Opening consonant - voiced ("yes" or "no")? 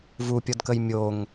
yes